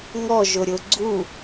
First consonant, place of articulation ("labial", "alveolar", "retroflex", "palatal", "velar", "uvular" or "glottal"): velar